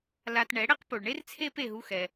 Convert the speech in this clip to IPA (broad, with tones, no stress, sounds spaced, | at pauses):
l a˧ t ɳ ɛ˩˥ ɽ e˥ q p o˩ ɭ ɳ e˥ r t͡sʰ e˥ p e˥˩ ɦ u˧ x ɛ˩